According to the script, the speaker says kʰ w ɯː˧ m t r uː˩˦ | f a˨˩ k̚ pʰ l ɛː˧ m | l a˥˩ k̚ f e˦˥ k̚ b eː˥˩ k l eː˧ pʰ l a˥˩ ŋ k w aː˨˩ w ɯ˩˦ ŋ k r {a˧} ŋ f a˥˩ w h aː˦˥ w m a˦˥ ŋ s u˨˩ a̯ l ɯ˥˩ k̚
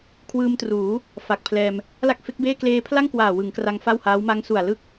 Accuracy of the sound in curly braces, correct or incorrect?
correct